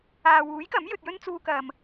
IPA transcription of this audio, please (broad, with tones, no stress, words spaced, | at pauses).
aː˨wuː˨˥jkɐ˨˥m jɵ˧t̚jɵ˥n t͡suː˧ kɐ˨m